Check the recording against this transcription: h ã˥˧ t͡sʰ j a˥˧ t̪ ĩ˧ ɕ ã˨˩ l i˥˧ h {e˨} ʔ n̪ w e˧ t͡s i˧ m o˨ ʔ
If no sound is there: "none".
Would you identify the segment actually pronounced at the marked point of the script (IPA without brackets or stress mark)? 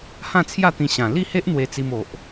e˦